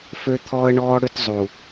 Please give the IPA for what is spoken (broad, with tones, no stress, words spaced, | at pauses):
fø˦t̪ʰɔː˦ə̯ ɳɔː˦ ɽø˦tzˤu˨